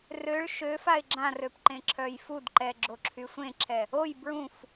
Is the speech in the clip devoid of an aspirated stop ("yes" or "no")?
no